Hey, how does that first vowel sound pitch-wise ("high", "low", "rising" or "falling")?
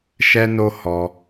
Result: high